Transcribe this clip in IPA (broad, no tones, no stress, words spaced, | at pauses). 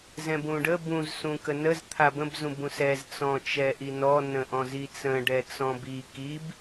zɛ̃bũɖə bũz sũkənəz t̪ʰabə̃b zũbũsɛz t͡sɔ̃t͡ʃɛʔinɔ nə̃ʔɔ̃zit͡sə̃ ɖɛt͡sɔ̃bi kib